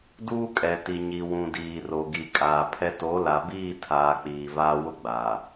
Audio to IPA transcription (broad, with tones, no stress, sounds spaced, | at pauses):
d uː˦ kʼ ɛ˨ t i˨ ɲ i˨ w ũ˨ d iː˨ r o˨ ɡ i˨ kʼ aː˨ pʰ ɛ˦ t o˨˦ l a˨ b iː˦˨ tʰ aː˨ k͡p iː˨ v aː˦ w ʊ˦ ɡ͡b a˨